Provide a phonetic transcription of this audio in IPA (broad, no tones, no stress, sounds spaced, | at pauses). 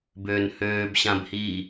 b øː n h øː b ɕ ã b h iː